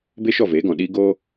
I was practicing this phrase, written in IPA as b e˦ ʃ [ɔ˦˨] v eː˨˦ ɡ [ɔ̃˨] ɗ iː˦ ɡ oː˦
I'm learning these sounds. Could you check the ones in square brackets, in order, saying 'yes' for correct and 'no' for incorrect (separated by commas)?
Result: yes, yes